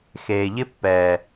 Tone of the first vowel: low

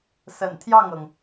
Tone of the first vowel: low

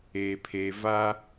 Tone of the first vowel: low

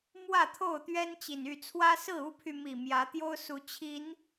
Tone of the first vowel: falling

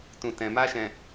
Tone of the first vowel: low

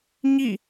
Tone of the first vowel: falling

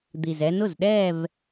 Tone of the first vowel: low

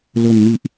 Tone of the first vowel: low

